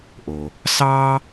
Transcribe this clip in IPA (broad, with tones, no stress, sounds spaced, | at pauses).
ʔ o˩ | s ɑː˥